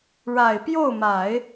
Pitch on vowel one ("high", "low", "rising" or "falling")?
low